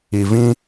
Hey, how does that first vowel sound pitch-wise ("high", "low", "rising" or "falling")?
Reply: low